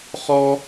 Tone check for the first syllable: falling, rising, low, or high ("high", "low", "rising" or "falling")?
high